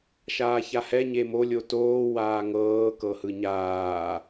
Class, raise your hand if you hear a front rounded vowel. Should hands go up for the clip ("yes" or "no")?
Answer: no